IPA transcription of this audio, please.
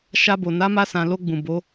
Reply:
ʃ a˧ b o˨ n a˨˦ m a˧ s ã˨ l o˧ ɡ͡b ũ˨ b o˨˦

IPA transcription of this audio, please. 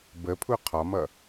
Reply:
b ə pʰ u qʰ ɒ m ʌ

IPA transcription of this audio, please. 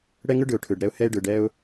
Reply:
ɽ ɛ˧ ŋ ɯ˧ ɖ ɯ˩ ʊ̯ ʈʰ ɯ˩ ɖ ɾ ɛ˧ ʊ̯ h ɛ˧ ɪ̯ ɖ ɯ˩ ɖ ɛ˧ ʊ̯

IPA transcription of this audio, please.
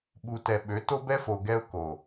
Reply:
ɓ u˨ t ɛ˨ ɓ ø˨˦ t o˦ b ɛ˦ f o˨ ɡ ɛ˦ ʊ̯ k o˨

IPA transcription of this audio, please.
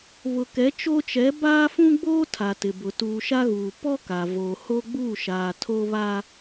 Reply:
β ʊ˨ k ɛ˨˦ t͡ʃ o˦ t͡ʃ ɛ˨˦ b aː˦ f ũ˦ ɡ͡b oː˦ tʰ a˨ t ɪ˨ b ʊ˨ t uː˨ ʃ a˦ ɣ uː˨ p ɔ˦ k a˨ v oː˨ h o˦ ɡ͡b uː˦˨ ʃ aː˨ tʰ o˦ β a˦

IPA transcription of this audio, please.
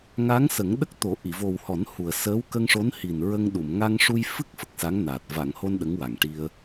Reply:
ŋ a˧˥ ŋ s ə˨˩˦ ŋ ɗ ə˦˥ k̚ t̪ o˨˩˦ ʔ i˨˩˨ v o˨˩ w h ɔ˨˩˦ n h u˨˩ ə̯ s əː˧˥ w k ə˧ ŋ ʂ o˧˥ n h i˨˩ n ɹ ə˧ ŋ ɗ u˨˩˨ m ŋ a˧ ŋ ʂ u˧ j f ɨ˦˥ k̚ f ə˨˩ k̚ s a˧˥ ŋ n a˨˩ t̚ v a˨˩˨ ŋ h o˧ n ɗ ə˧˥ ŋ w a˨˩ ŋ ʈ i˧ ə̯

